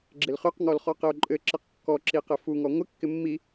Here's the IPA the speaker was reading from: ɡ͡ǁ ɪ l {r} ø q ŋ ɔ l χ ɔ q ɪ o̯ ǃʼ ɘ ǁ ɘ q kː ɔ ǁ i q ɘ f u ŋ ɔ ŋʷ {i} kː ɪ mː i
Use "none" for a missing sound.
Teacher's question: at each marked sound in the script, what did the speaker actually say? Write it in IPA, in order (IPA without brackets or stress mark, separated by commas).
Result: χ, ɪ